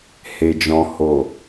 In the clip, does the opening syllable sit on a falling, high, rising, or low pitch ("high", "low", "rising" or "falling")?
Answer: low